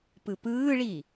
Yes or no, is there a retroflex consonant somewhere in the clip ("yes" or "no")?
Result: yes